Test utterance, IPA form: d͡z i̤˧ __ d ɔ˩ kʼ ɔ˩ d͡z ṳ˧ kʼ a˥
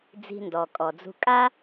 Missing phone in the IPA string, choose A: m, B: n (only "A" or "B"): B